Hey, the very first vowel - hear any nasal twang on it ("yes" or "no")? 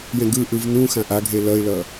yes